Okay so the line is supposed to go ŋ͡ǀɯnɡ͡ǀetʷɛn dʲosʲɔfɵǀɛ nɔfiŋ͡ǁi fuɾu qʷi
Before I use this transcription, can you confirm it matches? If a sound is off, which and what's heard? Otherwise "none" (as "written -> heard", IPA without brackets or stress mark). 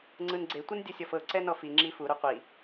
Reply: ɵ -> ɤ